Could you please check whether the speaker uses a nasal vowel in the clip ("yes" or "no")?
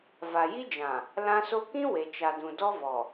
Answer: yes